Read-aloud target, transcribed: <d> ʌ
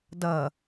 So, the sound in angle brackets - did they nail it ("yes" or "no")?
yes